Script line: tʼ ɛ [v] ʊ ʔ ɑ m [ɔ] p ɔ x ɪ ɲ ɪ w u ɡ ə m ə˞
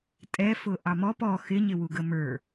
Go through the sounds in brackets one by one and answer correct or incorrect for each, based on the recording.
incorrect: f, correct

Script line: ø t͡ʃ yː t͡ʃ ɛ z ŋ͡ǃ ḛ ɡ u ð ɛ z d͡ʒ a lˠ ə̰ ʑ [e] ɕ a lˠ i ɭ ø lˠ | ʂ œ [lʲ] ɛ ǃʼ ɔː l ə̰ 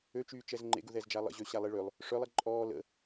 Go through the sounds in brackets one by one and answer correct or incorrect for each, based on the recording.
incorrect: ø, incorrect: lˠ

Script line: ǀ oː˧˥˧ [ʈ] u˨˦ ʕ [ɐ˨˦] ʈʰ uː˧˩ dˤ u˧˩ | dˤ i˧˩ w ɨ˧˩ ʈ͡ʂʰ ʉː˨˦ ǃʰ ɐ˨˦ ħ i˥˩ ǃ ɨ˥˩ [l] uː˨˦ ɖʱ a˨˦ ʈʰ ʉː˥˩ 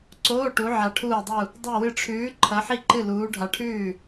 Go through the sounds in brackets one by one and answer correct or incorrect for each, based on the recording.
correct, incorrect: a˨˦, correct

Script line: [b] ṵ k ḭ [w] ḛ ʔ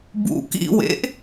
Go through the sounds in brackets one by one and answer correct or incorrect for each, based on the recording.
correct, correct

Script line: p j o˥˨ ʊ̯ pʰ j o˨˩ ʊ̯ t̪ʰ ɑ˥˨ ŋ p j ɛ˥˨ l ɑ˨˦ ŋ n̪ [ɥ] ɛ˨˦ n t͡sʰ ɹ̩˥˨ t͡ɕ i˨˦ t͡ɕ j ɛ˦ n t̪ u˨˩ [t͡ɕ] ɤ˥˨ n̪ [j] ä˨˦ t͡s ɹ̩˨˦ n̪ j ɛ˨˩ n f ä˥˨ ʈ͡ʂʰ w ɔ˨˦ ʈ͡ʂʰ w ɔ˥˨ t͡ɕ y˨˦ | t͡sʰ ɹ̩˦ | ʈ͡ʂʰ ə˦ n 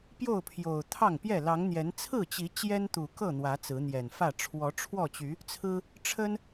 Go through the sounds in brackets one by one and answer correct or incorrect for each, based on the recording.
incorrect: j, incorrect: k, incorrect: w

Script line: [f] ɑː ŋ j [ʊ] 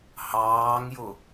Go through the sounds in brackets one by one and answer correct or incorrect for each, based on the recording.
incorrect: h, correct

